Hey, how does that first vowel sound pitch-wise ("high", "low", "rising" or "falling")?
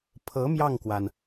rising